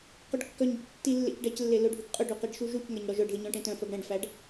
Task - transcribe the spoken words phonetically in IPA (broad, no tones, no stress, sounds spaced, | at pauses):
q ɵ ɖ kː œ ɲ ɟ ɛ̰ ɖ tː i lː ḛ c ɖ ɛ c lː e l ɵ ɖʱ ʉ ɡ qʼ ɵ ɖ ʉ q i ɖ ʃ u ʒ u c ŋ ɛ ɲ ɽ ɔ ʒ œ ɖ ð i ɲ ɔ̃ ʈ ẽ t œ̃ f œ ɡ ɽ ɛ̃ ɖ f æ ɖ